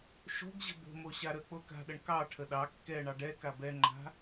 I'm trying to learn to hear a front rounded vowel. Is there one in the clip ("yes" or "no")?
no